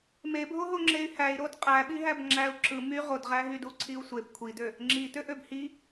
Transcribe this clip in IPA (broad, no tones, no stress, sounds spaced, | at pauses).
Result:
m e bʱ o ɦ o ŋ͡ǁ e y̯ h æ i̯ ɾ o d qʼ æ ɓ i ɦ æ b ŋ͡ǁ æ u̯ ǁ ɯ m y ʁ o d ʁ æ ɦ y d u ǀʰ i u̯ sʷ e b kʷʰ i d ø | ŋ͡ǁ i t ø ʔ ø b h i